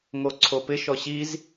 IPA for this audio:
ŋ o ǀʰ o p ɪ ʃ ɔ ɕ i z

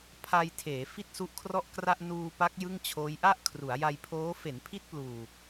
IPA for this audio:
pʰ a˧ j tʰ eː˩˦ f i˥˩ t̚ s u˦˥ ʔ kʰ r ɔ˥˩ ʔ k r a˥˩ ʔ n uː˧ p a˦˥ k̚ j ɯ˥˩ ŋ t͡ɕʰ oː˦˥ j ʔ a˥˩ ʔ kʰ r u˩˦ a̯ j a˧ j pʰ oː˦˥ f e˩˦ n pʰ i˦˥ t̚ p l uː˨˩

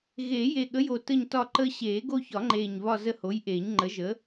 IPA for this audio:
ɣ eː˨˩˦ j e˨˩ ɠ ə˨˥ j o˨˩ t ə˦˨ ɲ t ɒ˦˨ ǃ əː˦ ɕ eː˨˩˦ ɡ o˦ ç ɒ˨˩˦ ŋ͡ǃ eː˨˩ ɲ β ɒ˦˨ z ə˦˨ h o˨˥ j ʔ eː˨˩˦ ɲ ŋ͡ǃ ə˨˥ ʒ ə˨˥

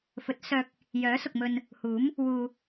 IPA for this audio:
f ɵ˨˥ t̚ s œː˨ k̚ | j œː˨˥ s ʊ˨ k̚ m ɵ˧ n | h uː˨˥ m | w uː˨

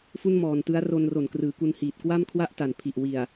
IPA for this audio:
f u˥˩ n m ɔː˨˩ n t ɯ˦˥ a̯ r o˧ n r o˨˩ n k r ɯː˩˦ k u˧ n h iː˨˩ t̚ k w a˥˩ m kʰ w a˥˩ ʔ t a˨˩ n pʰ i˨˩ ʔ w i˨˩ a̯

